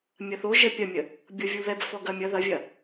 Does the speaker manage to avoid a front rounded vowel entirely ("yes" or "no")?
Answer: yes